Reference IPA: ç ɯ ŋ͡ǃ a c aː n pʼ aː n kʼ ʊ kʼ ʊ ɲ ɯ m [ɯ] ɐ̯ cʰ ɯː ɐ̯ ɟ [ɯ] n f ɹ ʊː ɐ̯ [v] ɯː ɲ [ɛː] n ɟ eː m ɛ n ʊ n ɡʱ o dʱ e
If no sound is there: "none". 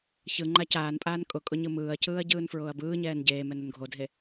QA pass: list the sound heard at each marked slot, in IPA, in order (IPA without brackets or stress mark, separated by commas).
ɯː, ɯː, b, ɛː